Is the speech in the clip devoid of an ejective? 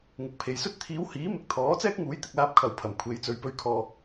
yes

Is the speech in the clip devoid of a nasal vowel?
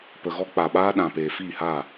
no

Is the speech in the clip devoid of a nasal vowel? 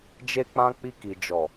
no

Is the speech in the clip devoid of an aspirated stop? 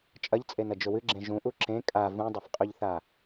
yes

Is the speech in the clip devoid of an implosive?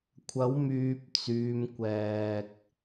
yes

